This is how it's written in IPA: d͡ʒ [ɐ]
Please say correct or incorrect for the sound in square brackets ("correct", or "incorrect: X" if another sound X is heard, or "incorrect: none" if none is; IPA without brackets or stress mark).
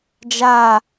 incorrect: a